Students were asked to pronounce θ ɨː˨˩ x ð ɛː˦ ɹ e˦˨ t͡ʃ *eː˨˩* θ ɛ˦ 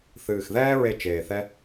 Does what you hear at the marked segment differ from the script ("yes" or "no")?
no